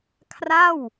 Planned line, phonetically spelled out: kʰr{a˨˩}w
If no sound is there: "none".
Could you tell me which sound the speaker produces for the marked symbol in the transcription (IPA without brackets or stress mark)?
a˥˩